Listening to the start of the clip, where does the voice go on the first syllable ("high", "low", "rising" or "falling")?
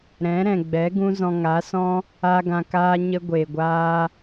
rising